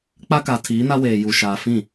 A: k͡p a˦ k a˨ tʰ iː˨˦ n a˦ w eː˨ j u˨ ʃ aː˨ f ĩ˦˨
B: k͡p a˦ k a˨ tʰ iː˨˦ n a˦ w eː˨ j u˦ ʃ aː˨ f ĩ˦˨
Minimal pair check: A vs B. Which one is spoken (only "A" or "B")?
A